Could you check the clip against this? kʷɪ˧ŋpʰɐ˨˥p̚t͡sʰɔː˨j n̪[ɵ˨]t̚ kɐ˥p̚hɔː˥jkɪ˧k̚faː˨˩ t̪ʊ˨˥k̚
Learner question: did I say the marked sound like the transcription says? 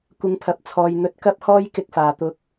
no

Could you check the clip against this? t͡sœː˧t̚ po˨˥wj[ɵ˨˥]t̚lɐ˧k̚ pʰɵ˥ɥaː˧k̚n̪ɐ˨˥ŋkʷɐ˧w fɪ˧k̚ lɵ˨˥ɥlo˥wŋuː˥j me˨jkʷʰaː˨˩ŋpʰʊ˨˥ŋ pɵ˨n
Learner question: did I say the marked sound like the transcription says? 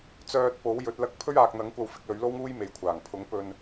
yes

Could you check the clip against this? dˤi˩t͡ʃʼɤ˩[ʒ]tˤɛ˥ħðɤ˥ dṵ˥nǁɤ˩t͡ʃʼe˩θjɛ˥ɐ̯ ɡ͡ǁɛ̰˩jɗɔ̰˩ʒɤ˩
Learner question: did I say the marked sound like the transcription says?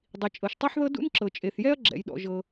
no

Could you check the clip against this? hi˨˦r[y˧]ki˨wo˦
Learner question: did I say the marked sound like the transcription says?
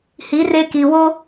no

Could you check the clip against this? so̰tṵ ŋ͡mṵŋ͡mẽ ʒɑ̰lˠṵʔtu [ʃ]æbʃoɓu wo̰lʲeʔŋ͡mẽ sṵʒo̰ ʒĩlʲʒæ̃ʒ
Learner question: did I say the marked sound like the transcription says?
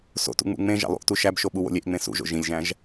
yes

